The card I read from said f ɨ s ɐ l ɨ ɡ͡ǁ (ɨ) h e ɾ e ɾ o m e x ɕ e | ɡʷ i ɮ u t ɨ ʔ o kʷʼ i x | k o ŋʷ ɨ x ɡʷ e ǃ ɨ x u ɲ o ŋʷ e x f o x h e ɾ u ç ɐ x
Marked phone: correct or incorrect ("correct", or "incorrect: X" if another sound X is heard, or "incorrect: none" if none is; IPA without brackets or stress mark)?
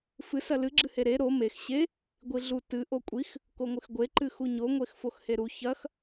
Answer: correct